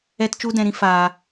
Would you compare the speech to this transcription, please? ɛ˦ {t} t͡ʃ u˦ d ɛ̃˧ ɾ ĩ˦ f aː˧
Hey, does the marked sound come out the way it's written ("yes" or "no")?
yes